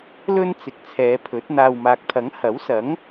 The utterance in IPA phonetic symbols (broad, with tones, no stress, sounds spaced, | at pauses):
l ɵ˧ n t͡s ɪ˨ k̚ t͡sʰ ɛː˨˧ pʰ ɵ˨˥ t̚ n̪ aː˧ w m aː˨ k̚ t̪ʰ ɐ˨˥ ŋ h ɐ˨˥ w s ɐ˨˥ ŋ